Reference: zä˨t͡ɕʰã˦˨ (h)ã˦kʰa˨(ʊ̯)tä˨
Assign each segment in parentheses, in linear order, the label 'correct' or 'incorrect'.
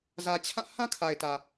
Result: correct, incorrect: ɪ̯

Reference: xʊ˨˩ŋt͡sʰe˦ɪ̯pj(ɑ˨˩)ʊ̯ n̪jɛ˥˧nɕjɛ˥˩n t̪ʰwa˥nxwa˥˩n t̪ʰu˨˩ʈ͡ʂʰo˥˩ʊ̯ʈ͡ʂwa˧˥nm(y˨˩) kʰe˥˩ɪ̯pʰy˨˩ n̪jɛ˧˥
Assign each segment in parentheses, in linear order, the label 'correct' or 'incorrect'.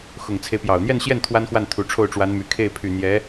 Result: correct, correct

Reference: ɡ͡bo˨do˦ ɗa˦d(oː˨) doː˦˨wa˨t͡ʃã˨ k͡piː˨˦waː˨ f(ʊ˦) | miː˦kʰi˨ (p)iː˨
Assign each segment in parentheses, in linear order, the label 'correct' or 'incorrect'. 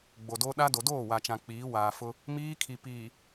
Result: incorrect: o˨, correct, correct

